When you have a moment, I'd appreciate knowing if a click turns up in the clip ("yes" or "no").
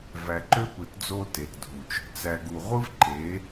yes